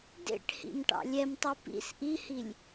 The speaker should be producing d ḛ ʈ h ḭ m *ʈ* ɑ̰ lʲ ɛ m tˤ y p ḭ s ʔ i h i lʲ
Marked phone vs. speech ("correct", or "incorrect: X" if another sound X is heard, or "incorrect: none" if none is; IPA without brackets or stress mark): correct